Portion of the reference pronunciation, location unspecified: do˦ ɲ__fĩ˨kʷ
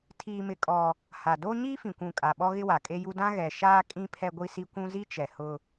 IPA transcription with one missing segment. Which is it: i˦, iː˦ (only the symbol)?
iː˦